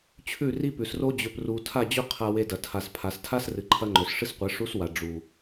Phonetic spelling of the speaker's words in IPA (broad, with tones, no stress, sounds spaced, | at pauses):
t͡ɕʰ ʉ˦˨ r i˦ p ʉ˨ s r o˦ d͡ʑ ɵ˨ p r u˨ tʰ a˦˨ d͡ʑ ɵ˦ qʰ a˧ w e˧ d ɐ˨ tʰ a˨ s pʰ a˨ s tʰ a˦ s r ɨ˨ ǃʰ ɐ˧ ŋ͡ǃ ɵ˨ s ʂ ɨ˦ s qʷ e˨˦ ʂ u˦ s w a˨ ɖ͡ʐ u˨